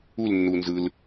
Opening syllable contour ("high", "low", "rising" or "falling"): falling